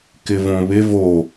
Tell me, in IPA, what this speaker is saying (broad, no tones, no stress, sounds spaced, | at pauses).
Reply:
k ɪ v õ β ɪ v o